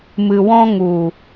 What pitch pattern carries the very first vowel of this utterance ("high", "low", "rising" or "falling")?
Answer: low